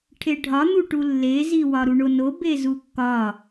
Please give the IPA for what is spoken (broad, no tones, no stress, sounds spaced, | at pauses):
ʈʰ e ɖʱ ɒ n̪ u ʈ u lː e z i w ɒ ɾ u ɳ o n o b e z u kː ɒ